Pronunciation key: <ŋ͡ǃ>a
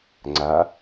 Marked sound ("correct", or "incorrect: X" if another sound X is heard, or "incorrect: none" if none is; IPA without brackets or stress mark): incorrect: ŋ͡ǀ